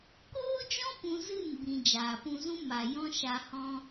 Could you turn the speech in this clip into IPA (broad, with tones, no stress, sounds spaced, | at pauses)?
k oː˦ d͡ʒ ɔ̃˦ p ũ˦ z ɨ˦˨ n b ĩ˨ d͡ʒ aː˨ p ũ˧ z ũ˦ m a˨ j ɔ̃˦ ʃ a˧ h ɔ̃˦